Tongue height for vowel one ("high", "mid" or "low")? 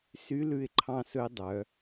high